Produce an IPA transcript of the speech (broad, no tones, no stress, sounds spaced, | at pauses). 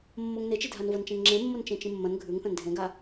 mː o ŋ n e t͡ʃ i dʱ a n v ɐ n t͡ʃ ẽ ŋ ŋ͡ǁ ẽ mː o n t͡ʃ ẽ t͡ʃ ĩ mː ɐ̃ n ɡʱ ʉ ŋ θ ɐ̃ n dʱ ẽ ɡ a